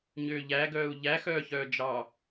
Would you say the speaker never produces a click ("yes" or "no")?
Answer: yes